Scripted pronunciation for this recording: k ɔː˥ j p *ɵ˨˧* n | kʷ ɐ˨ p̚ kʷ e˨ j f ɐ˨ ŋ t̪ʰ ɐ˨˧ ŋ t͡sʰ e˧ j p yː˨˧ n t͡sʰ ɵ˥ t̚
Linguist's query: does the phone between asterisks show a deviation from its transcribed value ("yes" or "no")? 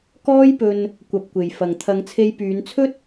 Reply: yes